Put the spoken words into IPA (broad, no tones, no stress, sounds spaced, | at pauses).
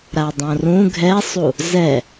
ɾ a dˤ õ r ũ ɡʱ ɛ sˤ u | z ɛ